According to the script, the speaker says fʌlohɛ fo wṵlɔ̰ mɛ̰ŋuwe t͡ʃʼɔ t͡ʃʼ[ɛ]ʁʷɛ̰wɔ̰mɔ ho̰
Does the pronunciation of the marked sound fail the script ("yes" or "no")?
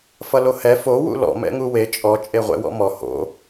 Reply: yes